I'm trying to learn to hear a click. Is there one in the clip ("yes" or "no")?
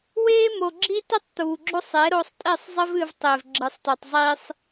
yes